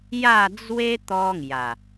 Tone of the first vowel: falling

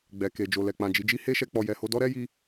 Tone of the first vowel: low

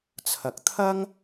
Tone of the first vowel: low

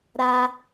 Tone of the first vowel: high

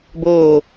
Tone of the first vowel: falling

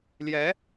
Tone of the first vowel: rising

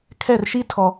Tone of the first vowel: falling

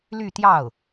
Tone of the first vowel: falling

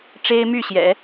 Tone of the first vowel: high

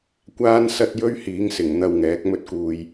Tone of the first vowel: high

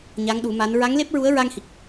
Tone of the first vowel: rising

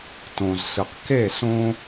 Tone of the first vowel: low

